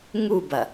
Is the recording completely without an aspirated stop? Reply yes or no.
yes